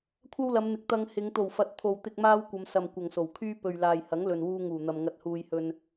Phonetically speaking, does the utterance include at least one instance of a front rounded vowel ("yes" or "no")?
yes